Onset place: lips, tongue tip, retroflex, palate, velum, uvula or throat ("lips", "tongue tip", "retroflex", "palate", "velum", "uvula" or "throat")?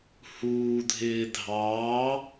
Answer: throat